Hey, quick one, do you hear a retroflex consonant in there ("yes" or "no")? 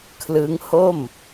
no